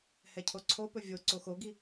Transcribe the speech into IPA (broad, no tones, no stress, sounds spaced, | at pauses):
h ɛ cʰ o ǀʰ o p ɵ vʲ o ǀ o x o ɡ i